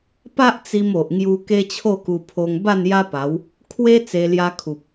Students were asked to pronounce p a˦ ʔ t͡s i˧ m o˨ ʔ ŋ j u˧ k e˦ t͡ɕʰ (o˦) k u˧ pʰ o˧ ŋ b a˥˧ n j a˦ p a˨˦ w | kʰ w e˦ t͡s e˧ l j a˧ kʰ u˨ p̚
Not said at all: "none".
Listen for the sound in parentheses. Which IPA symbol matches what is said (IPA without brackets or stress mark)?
o˥˧